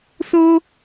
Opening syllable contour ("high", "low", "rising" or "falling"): high